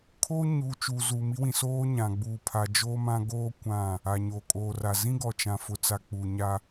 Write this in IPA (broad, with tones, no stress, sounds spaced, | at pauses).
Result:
kʰ oː˦ ɲ uː˨ t͡ʃ uː˨ z uː˨ m i˦ w ĩ˨ s oː˦ ɲ ã˨ ɡ͡b uː˨ pʰ a˨ d͡ʒ oː˦ m ã˦ ɡ oː˦ kʷ ã˦˨ | a˨ ɲ oː˨ kʼ oː˨ r a˨ z ĩ˦ ɡ ɔ˨ t͡ʃ ã˨ f ʊ˨ t͡s a˨ k͡p uː˨ ɲ a˦